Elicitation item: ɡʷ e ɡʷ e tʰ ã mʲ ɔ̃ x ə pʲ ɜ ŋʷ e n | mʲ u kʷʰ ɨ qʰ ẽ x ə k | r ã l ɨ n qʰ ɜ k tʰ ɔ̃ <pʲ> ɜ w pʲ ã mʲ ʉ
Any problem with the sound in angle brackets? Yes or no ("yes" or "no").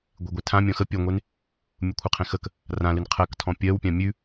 no